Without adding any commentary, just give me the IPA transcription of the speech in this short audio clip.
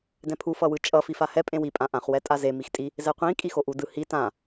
d ɛ̃ pʰ u f ʌ w ɯ t͡ʃʼ ʌ f i f a h ɛ pʼ ẽ w i pʼ ã ʔ ã χ w ɛ tʼ a z e m i x tʼ i | z ɛ qʷ ĩ kʼ i x o ʔ u d ɯ h i t ã

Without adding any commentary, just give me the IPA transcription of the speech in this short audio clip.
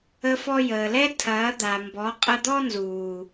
ə˧ f ɔ˧ j əː˨ l ɛ˦ tʰ ɐː˨˦ d̪ a˨ m b ɔ˨˦ qʼ ɐ˧ d̪ ɔ˦ n z uː˨

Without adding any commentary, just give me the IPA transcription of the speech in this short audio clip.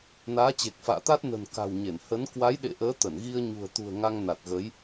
n aː˨˦ t͡ɕ e˨˩ k̚ f a̰ː˧˨ t̪ a˦˥ t̚ n ə̤˨˩ n k a̤˨˩ w ɲ e˧˩ n h ə˨˦ n k w a˨˦ j ɗ ḛ˧˨ ʔ əː˨˦ t̪ ə˧˩ n ɣ i˧ ə̯ ɲ ṳ˨˩ ə̯ t̪ ṳ˨˩ ə̯ ŋ a˧ ŋ n a˨˩ t̚ ɣ ə˨˦ j

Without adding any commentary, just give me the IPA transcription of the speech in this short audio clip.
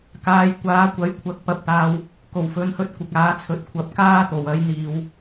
k aː˨˧ j kʷ aː˨˥ kʷ ɐ˨˥ j kʷʰ ɐ˨˥ k̚ p ɐ˨˥ p̚ t̪ aː˧ w | k o˨˩ w f ɵ˨˥ n h ɵ˧ t̚ kʷ ɪ˨ k̚ aː˨˥ t͡sʰ ɵ˨˥ t̚ kʷʰ ɐ˨˥ p̚ k aː˥ t̪ o˨˩ w ɐ˨˥ j n̪ iː˨ w

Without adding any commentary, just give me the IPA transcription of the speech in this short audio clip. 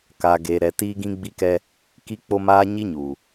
k a˨ ɡ eː˨ ɾ ɛ˨ t iː˦ ɡ ĩ˦ ɡ͡b i˦ k ɛ˦ | k i˦ k͡p o˦ m aː˦ ɲ i˦ ɲ uː˨

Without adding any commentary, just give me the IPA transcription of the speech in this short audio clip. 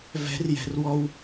v ɛ̤ r j ɛ̤ r w ɔ w

